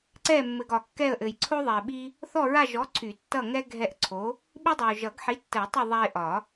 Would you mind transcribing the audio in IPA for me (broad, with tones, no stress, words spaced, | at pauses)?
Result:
ǀɛ˦˨mːɘ˨ɡ ɒ˨kːɛ˦˨ə̯ʔɘ˨j ǀʰo˦ðˤɛ˨ɪ̯ɓi˦ | θɔ˦˨ɹa˦˨ʒɔ˨˥ ǀʰy˨˩˦tːʌ˦˨ŋɛ˦ ɡʱɛ˦˨ʔǀʰo˨˥ | ɓi˦dˤa˨ʊ̯ ʒʌ˨˩˦ɡħi˨˥tːə˨˩˦jtˤɛ˦˨ ðˤa˦ɪ̯ʔɒ˨˩˦